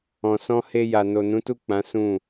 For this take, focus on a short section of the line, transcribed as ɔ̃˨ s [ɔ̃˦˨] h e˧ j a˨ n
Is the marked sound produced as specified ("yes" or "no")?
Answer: no